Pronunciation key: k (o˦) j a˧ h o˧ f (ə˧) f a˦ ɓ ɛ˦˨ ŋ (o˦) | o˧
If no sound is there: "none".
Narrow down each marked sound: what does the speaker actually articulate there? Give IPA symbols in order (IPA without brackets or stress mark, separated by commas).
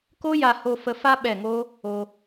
o˦, ə˧, o˦